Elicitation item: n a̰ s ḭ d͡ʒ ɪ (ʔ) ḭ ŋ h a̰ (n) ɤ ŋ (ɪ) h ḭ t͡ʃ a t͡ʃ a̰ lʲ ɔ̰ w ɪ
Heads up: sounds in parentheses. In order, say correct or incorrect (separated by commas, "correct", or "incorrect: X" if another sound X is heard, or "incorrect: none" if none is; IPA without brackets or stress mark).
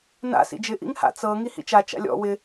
correct, incorrect: t͡s, incorrect: i